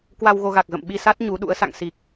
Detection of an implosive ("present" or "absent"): present